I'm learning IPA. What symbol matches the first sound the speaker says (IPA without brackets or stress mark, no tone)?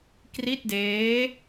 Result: k